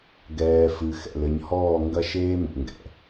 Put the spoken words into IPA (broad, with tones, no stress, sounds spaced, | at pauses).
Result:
ɡ ɛː˨ f ɨ˨ x ɛ̰˨ l ɘ˨ ɲ h ɔː˦˨ ŋ ɡ ɐ˦ ʃ eː˦ m ṵ˨ ŋ ɡ ɛ̰˨